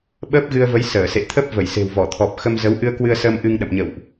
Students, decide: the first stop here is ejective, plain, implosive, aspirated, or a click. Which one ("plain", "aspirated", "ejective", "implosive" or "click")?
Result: implosive